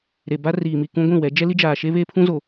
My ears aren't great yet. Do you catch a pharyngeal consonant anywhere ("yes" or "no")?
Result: no